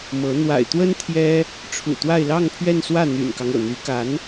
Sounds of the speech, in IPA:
mɤ˧˥ n̪wa̰˨˩ɪ̯t̪wə˥n t̪ʰjɛ˥ | ʈ͡ʂʰṵ˨˩t̪wa˥˧ɪ̯ lɑ˥˧ŋpʰɥɛ˥˧nswä˥˩ n̪y̰˨˩nkɑ˦ŋ ɤ̰˨˩n̪y˧˥ ka˧˥n

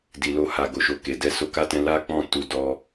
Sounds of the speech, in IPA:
di˨lo˧ha˨ ɡo˨ʃo˧ke˨ dɛ˧so˧ka˦tɛ̃˧ la˦ k͡pɔ̃˦˨ tu˧ dɔ˦

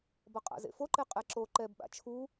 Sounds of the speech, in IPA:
bʌqʼa̰zḛfo ǃeqʼɛǁo ǃɛbɓa̰ t͡ʃʰu

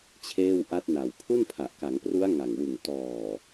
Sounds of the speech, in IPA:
t͡ɕʰeː˥˩w ʔa˦˥t̚na˨˩w pʰu˥˩npʰa˨˩ʔka˩˦ŋpru˦˥a̯ ŋa˨˩ŋwɯ˨˩ŋ tɔː˨˩

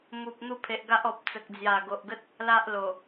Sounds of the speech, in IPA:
mu˨p̚ n̪u˥˧pʰe˨ʔ ɡa˦ʔɔ˨p̚ t͡sə˨k̚d͡zja˨˩ɡo˨ʔɡə˦t̚ | la˦ʔlo˨˩

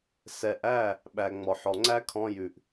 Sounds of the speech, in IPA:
sɛ˨ʔæ˦˨ | ɓæ˨ ŋ͡mɔ˨ħɔ˨ŋ͡ǀæ˦kʰɔ̃˧ jʉ˨ʔ

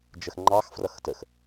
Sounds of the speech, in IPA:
d͡ʒəxŋ͡ǃɑx frʌxtəx

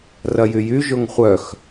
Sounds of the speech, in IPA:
rɐjyjy ʒʊŋχʷœx

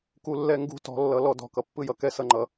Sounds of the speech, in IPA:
ku˨lːɛ˦˨ŋɡṳ˦ tɔ̤˨˦lːʌ˨lɔ˨˦ dɔ̤˨kʌ˨pːɯ˦jʌ˨ kɛ˦sʌ˦˨ŋ͡ǃʌ˨

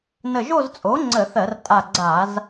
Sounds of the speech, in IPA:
nə˧˩ʒo˥˧zt͡sʼo˩˥ ŋ͡ǀə˧˩˧θɜ˧˩˧r tʼa˧˩ɡ͡ǀa˧˩˧z

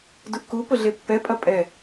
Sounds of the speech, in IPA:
duʔkupʊ ɮepːɛpʼɐ pʼɛ

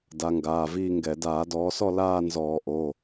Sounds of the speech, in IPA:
da˨˦ŋɡaː˩˧˩viː˥˧ŋɡɛ˧˩˧ daː˧˩˧dɔː˨˦sɔ˥˧ laː˥˧nzɔː˧˩˧ ʔo˩˧˩

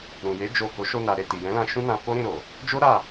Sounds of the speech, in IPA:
ɾũ˨je˨˦ d͡ʒo˦˨ ko˨˦ʃo˧ na˨ɾe˨ ti˨jɛ̃˨˦lã˧ ʃũ˦nã˧ fo˦ɾĩ˦˨ ɾo˨ | d͡ʒo˦ ɾa˦˨

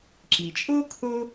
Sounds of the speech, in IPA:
ǁi˩t͡ʃʼo˥ kʰo˥

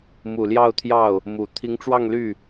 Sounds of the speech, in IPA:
mu˨˩ljɑ˥˧ʊ̯t̪ʰjɑ˥˩ʊ̯ | mu˨˩ t̪ʰi˧˥ŋʈ͡ʂwɑ˥˧ŋly˥˩

